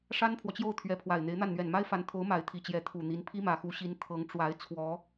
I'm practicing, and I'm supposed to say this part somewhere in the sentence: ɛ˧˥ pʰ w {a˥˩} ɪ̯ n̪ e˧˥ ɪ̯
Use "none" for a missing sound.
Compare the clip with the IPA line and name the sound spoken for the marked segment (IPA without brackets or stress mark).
a˨˩